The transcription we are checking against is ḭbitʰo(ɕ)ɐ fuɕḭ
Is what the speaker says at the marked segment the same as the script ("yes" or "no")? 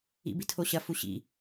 yes